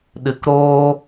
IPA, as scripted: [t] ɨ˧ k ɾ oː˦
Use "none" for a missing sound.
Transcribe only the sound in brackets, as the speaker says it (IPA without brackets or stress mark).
ɗ